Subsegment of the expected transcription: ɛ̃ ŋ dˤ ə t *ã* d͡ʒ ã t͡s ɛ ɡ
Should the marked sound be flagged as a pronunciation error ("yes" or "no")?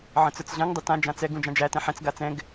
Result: no